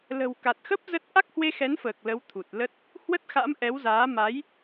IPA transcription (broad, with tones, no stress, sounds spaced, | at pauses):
l ə̤˨˩ w k a˨˩ t̚ x ə˦˥ p̚ z ə˦˥ t̚ ʔ a˦˥ k̚ h w e˧ x ɛ˨˦ n f əː˨˩ k̚ l ə˨˦ w t̪ʰ u˨˩ t̚ l ə˦˥ t̚ | h w ə˦˥ t̚ x a̰˧˥ m ʔ ɛ˨˦ w z aː˨˦ m a˨˦ j